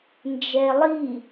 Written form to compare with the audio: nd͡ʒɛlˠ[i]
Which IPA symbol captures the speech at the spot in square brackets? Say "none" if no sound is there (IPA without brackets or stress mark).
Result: i